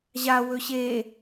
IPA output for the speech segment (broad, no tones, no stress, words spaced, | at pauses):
ʑa wɵɕe